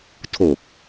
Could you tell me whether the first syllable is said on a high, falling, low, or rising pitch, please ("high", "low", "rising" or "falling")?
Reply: low